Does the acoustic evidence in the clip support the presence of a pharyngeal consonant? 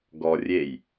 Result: no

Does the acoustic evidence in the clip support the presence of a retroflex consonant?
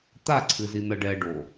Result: yes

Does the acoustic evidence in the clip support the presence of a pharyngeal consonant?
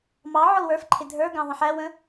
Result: yes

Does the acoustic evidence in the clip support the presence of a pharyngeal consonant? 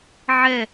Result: yes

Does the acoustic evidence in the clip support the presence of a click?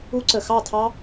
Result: yes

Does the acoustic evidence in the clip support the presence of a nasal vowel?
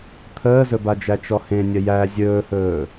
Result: yes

